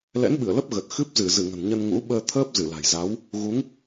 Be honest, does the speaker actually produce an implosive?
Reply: yes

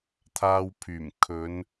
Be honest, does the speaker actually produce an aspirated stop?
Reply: yes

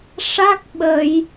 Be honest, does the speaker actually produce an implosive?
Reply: yes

